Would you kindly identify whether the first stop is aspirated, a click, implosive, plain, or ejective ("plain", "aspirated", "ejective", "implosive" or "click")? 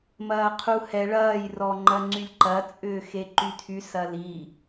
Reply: aspirated